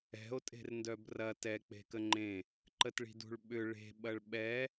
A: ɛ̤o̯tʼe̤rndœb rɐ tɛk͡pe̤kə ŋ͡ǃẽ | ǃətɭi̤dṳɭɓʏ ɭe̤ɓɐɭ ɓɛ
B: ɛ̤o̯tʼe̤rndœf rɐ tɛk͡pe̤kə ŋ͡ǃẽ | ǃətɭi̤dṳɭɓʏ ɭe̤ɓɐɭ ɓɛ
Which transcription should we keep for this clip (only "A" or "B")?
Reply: A